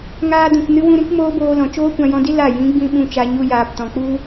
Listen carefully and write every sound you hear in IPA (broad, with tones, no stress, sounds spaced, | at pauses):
ŋ aː˧ d ũ˨ k n ɨ˧ w ũ˧ ɾ ĩ˦ k m oː˦ b oː˧ l ɔ̃˨ t͡ʃ oː˦ kʷ ã˧ j ɔ̃˧ d i˦ l a˦˨ j ĩ˨˦ ɡ͡b ĩ˧ ɓ ũ˧ t͡ʃ a˧ ɲ u˧ j aː˨ p t ɔ̃˨ k͡p u˦